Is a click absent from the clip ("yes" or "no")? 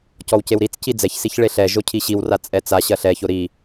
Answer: yes